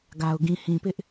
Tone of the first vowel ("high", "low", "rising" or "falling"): low